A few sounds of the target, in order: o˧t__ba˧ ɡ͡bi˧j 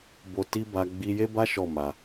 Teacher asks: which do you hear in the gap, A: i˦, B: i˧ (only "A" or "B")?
A